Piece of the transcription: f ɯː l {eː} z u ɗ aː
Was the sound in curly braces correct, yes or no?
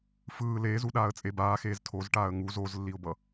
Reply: yes